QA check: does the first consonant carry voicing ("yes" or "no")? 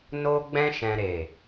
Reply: yes